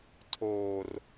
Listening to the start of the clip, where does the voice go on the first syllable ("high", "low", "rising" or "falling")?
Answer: low